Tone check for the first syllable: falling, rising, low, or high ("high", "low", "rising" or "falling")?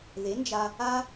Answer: rising